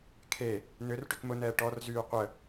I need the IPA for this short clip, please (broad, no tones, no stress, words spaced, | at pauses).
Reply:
kʰe | nʏr ʈʏkmʊnɛː ʈɔrzyː qʷə